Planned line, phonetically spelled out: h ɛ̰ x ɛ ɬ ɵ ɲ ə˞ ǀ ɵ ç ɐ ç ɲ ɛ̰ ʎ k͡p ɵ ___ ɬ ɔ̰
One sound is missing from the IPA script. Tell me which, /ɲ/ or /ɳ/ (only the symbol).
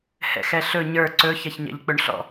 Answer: ɳ